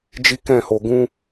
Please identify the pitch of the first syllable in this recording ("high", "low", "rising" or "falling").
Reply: high